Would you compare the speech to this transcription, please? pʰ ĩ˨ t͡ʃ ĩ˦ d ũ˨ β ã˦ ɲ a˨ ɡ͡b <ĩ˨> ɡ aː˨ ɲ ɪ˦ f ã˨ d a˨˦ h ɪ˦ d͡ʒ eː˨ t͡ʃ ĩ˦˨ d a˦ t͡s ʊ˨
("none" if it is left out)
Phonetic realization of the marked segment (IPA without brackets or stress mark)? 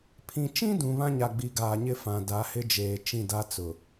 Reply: i˨